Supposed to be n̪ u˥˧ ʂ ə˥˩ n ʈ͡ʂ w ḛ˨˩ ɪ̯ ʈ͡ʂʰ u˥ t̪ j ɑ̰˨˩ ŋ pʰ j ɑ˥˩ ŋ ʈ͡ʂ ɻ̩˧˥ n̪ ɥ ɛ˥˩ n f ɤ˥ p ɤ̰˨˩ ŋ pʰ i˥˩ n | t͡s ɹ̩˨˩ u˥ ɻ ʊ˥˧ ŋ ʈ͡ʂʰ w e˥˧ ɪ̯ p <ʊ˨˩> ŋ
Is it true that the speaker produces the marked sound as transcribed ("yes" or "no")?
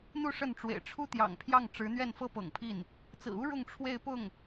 no